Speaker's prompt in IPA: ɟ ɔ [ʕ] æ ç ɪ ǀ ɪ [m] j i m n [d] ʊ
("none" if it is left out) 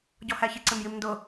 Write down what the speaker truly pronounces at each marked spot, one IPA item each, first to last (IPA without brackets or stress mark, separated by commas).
h, m, d